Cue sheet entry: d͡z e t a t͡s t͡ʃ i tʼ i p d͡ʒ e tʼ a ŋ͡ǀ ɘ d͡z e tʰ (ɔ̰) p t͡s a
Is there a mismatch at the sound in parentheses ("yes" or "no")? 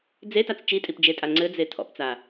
no